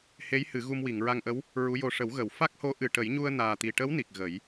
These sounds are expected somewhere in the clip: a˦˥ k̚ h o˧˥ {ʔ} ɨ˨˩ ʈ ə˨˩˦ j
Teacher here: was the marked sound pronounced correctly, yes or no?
yes